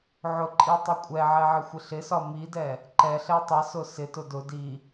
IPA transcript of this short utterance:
ʕ ʊ ǃʼ i tˤ ɪ kʷʼ ɛ ʕ ɛ ʕ ɪ xʷ ɪ ɬ ɪ s ɒ m i d ɛ | ǃ ɛ ɬ ɛ tˤ ɪ s ʊ s ɪ t ʊ d ʊ d i

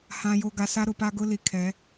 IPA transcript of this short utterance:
h ã˨ j o˨ ɡ a˨ s a˦ ɾ ʊ˨ p a˦ ɡ ʊ˦ l i˨ kʰ ɛ˨˦

